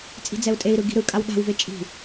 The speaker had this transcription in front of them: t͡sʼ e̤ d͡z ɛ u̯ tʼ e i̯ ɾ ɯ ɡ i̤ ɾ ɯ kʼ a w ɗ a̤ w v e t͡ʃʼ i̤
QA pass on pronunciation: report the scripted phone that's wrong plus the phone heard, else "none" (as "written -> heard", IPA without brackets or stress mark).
e̤ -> i̤